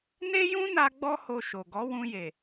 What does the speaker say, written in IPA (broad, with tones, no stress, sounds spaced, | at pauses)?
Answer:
n e˦ j ũ˦ n a˧ ɡ͡b ɔ˦ h o˧ ʃ o˨ ɡ ɔ˨˦ w ũ˧ j e˨